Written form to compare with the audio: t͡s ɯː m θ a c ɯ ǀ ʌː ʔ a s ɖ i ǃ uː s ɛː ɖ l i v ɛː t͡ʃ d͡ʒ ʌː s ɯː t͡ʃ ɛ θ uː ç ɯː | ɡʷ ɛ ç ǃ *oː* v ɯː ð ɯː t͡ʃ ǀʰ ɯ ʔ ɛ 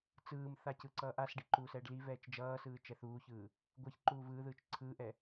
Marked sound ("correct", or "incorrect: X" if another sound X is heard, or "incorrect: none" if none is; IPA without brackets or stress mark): incorrect: uː